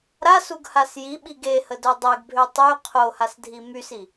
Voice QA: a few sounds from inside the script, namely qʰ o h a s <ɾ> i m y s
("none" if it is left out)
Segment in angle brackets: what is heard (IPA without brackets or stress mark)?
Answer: dʱ